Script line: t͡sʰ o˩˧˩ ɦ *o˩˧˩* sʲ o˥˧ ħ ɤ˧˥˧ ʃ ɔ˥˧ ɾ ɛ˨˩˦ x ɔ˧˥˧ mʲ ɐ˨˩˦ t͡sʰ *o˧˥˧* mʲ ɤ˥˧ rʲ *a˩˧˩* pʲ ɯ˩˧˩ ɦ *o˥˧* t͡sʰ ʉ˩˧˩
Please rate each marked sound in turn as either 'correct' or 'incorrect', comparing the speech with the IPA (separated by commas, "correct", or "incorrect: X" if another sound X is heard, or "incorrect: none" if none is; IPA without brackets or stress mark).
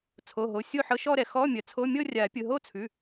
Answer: correct, correct, incorrect: a˨˩˦, correct